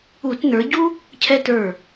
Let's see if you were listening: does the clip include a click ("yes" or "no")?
no